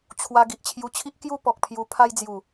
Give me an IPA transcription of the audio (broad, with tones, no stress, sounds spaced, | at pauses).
t͡ɕʰ w a˧ ɡ i˨ ʔ t͡ɕʰ j u˧ t͡ɕʰ i˦ ʔ k j u˥˧ p ɔ˨ k̚ pʰ j u˧ pʰ a˧ j d͡z j u˨˩